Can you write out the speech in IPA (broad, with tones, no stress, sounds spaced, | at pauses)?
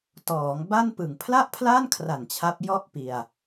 t ɔː˩˦ ŋ b a˥˩ n p ɯ˨˩ ŋ pʰ l a˥˩ ʔ pʰ l a˥˩ n kʰ r a˨˩ n t͡ɕʰ a˦˥ p̚ j ɔ˥˩ ʔ p i˧ a̯